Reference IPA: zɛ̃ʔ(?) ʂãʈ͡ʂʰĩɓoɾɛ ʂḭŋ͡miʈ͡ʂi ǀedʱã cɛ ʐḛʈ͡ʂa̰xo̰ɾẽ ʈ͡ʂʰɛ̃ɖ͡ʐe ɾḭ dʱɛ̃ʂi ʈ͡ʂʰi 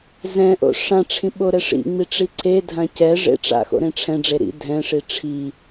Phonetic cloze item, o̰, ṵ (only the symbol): o̰